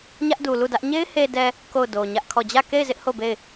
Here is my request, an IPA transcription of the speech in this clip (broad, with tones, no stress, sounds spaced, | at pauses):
ɲ ä˦ ʔ d u˨ l u˦˨ d ä˦ ʔ ɲ e˦ ɪ̯ h e˨ d ɛ˨ | k o˦˨ ʊ̯ d o˨ ɲ ä˦ ʔ kʰ ɔ˦˨ d͡ʑ ä˦˨ k e˦˨ ɪ̯ z ɪ˦ ʔ h o˦˨ b e˦˨ ɪ̯